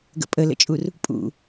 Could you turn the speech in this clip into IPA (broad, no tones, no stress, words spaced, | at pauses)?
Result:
ɡə̰pʼələ̰t͡ʃʼur | pʼṵ